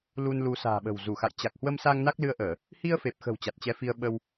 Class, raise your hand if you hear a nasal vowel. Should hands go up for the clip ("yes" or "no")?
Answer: no